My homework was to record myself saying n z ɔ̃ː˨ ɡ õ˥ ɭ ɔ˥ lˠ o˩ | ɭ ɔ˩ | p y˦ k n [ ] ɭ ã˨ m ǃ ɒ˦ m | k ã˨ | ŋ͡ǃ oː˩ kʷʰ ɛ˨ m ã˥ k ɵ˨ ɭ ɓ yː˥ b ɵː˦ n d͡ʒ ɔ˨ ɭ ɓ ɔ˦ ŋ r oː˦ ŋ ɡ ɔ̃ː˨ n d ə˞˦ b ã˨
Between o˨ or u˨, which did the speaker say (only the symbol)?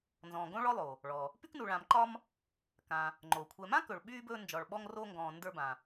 u˨